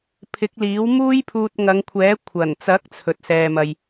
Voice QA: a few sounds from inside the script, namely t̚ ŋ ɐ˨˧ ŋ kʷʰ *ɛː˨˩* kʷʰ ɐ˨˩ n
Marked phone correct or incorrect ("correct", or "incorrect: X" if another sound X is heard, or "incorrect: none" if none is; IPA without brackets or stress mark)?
incorrect: ɛː˨˥